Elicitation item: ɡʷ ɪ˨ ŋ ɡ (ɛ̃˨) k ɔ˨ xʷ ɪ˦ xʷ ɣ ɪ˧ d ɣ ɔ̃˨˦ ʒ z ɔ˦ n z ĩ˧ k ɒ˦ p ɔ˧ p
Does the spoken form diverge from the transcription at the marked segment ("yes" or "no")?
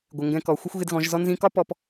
yes